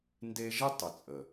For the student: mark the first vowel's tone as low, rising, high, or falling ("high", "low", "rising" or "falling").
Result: high